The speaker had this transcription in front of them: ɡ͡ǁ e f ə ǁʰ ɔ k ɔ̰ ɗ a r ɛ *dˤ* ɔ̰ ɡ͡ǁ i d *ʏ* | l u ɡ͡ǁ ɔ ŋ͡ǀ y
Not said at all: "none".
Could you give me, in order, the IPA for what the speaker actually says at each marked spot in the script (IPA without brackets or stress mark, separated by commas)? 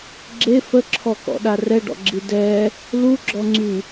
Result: ɖ, ɛ